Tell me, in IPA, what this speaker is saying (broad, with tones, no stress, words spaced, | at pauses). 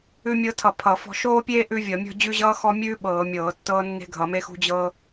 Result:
ʉ˦mʲɤ˦tʰʌ˧˩˧ pʰʌ˧˩˧fɔ̤˦ ʃoː˦pʲeː˦ ʔʉ˦vʲʌ˧˩˧mʲɔ̤˦ d͡ʑʉ˦ʑʌː˦ xɔ˦ mʲʉː˦ ɓɤː˧˩˧mʲɤː˧˩˧tːɤː˦ nːe̤˦ɡʱʌ˧˩˧me˦xṳ˦ d͡ʑɤ˦